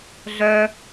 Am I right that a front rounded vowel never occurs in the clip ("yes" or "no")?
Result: no